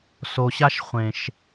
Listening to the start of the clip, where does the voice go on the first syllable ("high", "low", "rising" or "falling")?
low